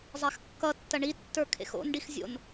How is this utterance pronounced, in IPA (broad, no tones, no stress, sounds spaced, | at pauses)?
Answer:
zˤ a x kː ʌ tː ɐ ɳ i tː ə˞ kʰ ḛ x o̰ n ɖ i x zʲ o̰ n